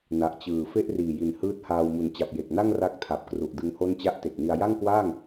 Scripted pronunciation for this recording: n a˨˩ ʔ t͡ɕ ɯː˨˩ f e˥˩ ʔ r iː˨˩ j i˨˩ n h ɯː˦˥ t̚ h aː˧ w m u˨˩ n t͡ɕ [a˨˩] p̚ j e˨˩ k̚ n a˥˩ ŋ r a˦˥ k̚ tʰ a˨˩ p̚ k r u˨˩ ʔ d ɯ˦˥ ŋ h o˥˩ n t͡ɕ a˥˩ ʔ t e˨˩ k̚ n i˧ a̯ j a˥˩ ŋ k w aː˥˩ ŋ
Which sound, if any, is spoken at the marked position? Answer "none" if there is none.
a˨˩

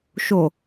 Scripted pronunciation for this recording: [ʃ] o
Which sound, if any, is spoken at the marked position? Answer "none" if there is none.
ʃ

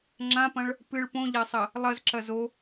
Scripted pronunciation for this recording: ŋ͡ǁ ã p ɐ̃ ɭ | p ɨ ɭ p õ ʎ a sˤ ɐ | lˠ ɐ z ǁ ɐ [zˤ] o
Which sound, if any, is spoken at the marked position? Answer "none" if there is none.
z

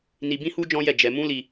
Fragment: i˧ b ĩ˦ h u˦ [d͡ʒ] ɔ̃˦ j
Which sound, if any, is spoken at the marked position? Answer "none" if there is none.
d͡ʒ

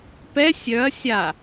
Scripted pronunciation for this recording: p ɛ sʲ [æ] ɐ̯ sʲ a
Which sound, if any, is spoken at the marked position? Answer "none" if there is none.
œ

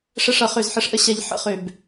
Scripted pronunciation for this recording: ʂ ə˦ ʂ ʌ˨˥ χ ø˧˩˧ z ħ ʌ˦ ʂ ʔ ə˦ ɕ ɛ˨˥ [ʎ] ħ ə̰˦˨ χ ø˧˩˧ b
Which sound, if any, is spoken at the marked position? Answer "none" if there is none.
ʎ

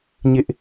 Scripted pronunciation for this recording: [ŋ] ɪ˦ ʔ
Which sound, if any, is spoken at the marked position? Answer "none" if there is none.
ɲ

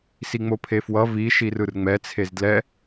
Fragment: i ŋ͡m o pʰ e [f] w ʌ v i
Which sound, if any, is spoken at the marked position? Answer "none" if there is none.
f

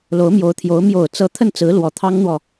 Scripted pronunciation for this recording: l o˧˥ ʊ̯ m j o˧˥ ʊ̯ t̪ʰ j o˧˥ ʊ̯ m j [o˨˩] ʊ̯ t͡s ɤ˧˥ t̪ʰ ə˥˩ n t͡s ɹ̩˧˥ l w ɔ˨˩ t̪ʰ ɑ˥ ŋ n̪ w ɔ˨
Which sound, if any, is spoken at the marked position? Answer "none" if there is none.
o˨˩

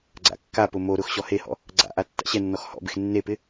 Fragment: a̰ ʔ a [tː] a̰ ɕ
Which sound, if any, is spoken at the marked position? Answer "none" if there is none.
tː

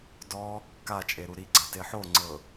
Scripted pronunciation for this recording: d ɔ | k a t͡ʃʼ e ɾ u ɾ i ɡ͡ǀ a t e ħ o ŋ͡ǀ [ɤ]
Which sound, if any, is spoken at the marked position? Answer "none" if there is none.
ɤ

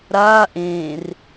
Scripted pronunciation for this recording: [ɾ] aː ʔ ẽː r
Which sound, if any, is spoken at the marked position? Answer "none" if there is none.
ɾ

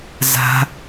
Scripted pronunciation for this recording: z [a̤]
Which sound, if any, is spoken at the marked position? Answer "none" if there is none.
a̤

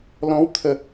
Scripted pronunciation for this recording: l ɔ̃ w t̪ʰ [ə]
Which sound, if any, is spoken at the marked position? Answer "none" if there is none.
ə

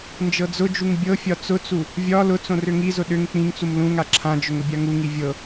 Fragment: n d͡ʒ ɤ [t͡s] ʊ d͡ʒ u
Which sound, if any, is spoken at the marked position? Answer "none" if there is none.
d͡z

